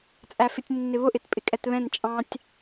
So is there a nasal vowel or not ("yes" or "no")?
yes